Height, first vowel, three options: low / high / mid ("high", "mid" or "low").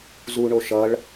high